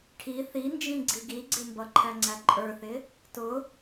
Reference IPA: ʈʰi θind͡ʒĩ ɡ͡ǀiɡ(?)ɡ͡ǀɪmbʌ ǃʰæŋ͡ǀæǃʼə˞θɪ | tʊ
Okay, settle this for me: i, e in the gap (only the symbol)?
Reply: i